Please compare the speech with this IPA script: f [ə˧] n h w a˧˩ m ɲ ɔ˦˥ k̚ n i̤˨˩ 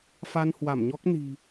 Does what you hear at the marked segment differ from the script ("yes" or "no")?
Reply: yes